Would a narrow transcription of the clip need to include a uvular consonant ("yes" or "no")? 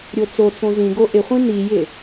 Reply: yes